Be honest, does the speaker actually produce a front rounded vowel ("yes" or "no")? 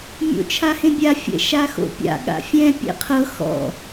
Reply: no